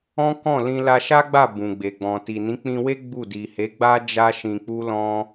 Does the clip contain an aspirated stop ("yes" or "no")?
no